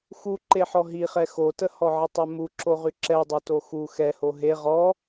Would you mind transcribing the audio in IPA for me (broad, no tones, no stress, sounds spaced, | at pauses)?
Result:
x u ǃ e ħ ɔ ɦ i χ ɛ x o t ə h ɔ ʕ ə tˤ œ m u ǁ o ʁ y ǁ ɛ dˤ y t o x u x ɛ h o ɦ e ʁ ɔ